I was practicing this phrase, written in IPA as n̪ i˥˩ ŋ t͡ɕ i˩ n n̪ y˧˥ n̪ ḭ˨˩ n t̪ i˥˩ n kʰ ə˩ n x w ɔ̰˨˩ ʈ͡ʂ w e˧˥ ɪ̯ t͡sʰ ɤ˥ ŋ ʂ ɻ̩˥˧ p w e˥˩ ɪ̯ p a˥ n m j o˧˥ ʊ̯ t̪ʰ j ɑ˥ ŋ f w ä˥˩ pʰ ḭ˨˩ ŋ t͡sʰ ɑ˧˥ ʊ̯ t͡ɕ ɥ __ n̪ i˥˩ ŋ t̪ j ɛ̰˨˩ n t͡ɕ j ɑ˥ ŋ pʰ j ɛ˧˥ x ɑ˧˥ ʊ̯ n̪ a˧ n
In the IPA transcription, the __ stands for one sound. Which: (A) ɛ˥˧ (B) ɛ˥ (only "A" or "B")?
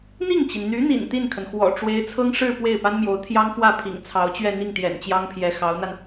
A